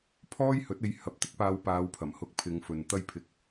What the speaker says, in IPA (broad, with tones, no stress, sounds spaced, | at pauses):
pʰ ɔː˥ j h ɵ˨˥ t̚ e˧ j h ɐ˨˥ p̚ t̪ ɪ˥ k̚ p aː˧ w p aː˨˧ w pʰ ɐ˨˩ m h ʊ˨˥ k̚ pʰ ɪ˨˧ ŋ f ɵ˨ n t̪ ɐ˧ j pʰ ɪ˨ k̚